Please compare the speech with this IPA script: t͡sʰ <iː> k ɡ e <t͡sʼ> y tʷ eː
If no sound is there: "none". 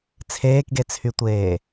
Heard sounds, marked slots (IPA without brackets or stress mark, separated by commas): eː, t͡sʰ